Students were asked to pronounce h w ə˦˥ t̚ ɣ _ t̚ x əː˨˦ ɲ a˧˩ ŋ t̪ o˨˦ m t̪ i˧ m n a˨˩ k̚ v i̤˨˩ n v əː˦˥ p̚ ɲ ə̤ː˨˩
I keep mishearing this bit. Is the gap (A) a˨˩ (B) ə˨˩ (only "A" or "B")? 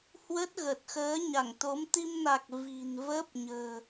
B